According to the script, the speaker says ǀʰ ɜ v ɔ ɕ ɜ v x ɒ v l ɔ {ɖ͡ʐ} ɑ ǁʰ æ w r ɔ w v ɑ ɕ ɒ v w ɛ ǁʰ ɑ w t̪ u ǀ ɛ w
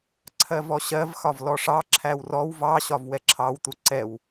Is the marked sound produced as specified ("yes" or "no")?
no